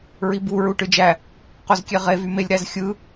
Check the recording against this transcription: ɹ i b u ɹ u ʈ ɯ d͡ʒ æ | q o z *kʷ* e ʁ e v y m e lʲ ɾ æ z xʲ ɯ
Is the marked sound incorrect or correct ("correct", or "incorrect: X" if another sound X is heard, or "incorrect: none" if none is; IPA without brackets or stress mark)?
incorrect: kʲ